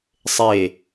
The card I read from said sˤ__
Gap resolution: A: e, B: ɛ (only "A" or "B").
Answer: A